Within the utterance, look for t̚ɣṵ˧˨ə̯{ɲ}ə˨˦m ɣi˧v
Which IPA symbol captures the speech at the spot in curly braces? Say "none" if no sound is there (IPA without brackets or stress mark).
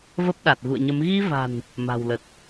ɲ